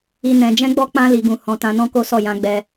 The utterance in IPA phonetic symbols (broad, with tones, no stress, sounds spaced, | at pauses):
i˨ n ɛ̃˨ d͡ʒ ɛ̃˧ ɡ͡b ɔ˧ k͡p ã˧ l i˨ ɡ ũ˨ h ɔ̃˨ t ã˧ n ɔ̃˦ k o˦ s ɔ˦˨ j ã˧ ɡ͡b ɛ˧